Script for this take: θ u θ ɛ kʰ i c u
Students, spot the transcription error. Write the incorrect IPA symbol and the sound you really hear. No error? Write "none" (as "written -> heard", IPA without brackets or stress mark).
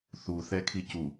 none